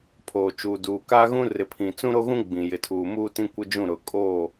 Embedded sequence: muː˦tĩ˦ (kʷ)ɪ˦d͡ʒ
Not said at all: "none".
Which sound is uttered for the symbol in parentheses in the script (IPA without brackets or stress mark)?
kʷ